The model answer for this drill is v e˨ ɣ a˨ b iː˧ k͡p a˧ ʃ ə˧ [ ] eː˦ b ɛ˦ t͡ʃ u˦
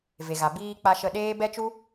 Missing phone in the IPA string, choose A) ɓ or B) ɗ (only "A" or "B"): B